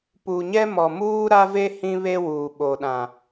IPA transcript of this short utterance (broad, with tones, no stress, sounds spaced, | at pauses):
p u˨ ɲ ɛ˦ m ɔ˨ m uː˦ ɾ a˦ v e˦ h ĩ˦ β e˦ w uː˨ ɓ o˨ ɗ ã˨